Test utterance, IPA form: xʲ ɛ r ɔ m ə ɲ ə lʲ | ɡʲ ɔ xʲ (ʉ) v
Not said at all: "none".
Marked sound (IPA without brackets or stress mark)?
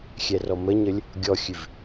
ʉ